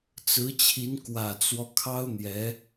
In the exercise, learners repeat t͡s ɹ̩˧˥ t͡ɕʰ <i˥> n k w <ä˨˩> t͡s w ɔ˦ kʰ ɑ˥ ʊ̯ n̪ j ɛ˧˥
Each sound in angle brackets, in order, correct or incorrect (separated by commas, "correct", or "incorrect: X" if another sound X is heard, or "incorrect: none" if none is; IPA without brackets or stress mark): incorrect: i˧˥, correct